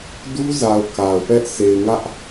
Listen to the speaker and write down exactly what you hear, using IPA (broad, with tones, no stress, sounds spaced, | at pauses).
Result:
d u˦ z a˨ ʊ̯ k a˨ ʊ̯ p ɛ˦ ʔ sʰ e˨ ɪ̯ ŋ ä˦ ʔ